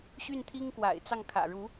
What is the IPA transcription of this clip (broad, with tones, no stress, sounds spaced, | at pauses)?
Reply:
ɕ y˥˩ n t̪ʰ i˥ ŋ k w a̰˨˩ ɪ̯ t͡s ɑ˥˩ ŋ kʰ ä̰˨˩ ɻ u˧˥